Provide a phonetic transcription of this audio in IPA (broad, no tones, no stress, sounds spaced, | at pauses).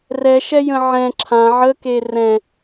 r ɛ ʃ ɛ j ə̃ ʕ ɛ̃ ǁʰ ã ʕ ə k e r ɛ̃